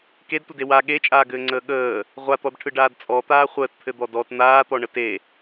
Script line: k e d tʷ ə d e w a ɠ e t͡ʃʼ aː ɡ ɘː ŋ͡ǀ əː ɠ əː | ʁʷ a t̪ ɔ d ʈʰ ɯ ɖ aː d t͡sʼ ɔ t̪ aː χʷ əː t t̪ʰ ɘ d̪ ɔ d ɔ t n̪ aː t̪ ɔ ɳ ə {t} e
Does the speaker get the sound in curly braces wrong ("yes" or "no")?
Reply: no